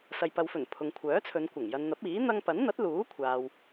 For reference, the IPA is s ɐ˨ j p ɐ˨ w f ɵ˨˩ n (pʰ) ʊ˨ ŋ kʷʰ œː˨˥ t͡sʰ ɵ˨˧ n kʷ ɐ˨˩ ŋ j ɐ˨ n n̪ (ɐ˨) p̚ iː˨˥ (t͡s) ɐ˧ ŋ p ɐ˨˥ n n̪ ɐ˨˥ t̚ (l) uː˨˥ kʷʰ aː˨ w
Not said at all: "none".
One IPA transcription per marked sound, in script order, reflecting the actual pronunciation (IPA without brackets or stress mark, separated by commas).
pʰ, ɐ˨˥, n̪, l